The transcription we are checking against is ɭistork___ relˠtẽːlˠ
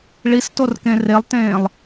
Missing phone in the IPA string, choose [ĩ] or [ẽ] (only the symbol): ẽ